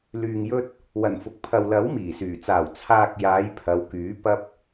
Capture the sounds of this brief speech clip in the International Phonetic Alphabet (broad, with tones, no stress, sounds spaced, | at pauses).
l yː˨ ŋ j ɵ˧ t̚ | w ɐ˨˩ n f ʊ˨ k̚ pʰ ɐ˨ w l ɐ˨˥ w m iː˨˩ s yː˨˩ t͡s aː˨˩ w t͡sʰ aː˨ k̚ j aː˨˧ j pʰ ɐ˨˧ w k yː˨˥ p ɐ˧ p̚